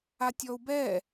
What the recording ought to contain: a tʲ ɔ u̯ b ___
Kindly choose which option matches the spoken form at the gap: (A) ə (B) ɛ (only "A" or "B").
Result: B